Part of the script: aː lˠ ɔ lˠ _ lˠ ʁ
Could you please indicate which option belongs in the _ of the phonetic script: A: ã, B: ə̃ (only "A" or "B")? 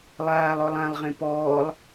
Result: A